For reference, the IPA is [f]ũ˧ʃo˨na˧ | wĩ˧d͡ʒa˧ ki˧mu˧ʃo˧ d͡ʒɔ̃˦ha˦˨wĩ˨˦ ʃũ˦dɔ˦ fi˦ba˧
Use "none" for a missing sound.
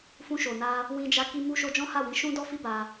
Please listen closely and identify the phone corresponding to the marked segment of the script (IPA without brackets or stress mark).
f